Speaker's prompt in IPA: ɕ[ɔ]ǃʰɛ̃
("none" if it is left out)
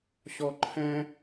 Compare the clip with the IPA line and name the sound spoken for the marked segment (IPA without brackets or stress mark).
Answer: ɔ